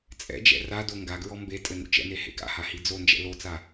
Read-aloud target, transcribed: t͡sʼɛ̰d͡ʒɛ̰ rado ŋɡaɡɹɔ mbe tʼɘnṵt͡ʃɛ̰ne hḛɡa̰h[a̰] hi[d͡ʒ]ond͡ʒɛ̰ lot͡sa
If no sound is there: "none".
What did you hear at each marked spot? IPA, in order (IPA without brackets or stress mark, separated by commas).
a, d͡z